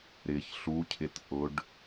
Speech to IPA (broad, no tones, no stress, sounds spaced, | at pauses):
ɾ ɪ ç ɬ u cʰ ɪ t ʔ ʊ ɖ